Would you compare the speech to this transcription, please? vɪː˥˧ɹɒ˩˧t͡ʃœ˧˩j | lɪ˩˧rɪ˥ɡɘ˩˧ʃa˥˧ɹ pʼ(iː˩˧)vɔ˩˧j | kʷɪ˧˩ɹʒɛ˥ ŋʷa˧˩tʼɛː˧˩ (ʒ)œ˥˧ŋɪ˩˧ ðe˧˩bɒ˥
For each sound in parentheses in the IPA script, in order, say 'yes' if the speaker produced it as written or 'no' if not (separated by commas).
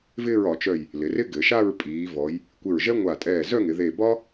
yes, no